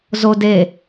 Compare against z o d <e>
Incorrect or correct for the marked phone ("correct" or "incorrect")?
correct